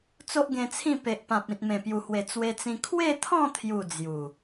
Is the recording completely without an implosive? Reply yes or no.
yes